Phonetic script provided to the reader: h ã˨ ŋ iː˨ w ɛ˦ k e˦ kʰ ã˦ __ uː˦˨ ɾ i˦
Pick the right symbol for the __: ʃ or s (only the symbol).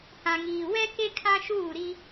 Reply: ʃ